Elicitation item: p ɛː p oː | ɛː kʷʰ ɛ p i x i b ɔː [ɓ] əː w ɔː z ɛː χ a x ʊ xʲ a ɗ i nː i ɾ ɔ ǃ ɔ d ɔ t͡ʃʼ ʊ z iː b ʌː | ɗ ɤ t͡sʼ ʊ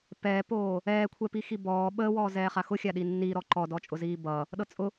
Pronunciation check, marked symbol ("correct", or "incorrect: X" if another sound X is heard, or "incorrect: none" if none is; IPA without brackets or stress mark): correct